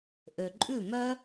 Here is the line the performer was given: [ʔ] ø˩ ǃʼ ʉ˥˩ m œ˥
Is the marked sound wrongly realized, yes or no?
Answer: no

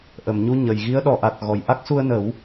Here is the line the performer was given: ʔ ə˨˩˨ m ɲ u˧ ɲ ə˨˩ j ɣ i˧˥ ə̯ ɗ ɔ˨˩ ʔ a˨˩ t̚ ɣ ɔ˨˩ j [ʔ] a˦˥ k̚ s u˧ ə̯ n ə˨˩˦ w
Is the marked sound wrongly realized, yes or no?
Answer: no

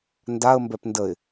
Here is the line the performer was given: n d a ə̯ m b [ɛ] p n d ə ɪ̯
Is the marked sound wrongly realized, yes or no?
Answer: no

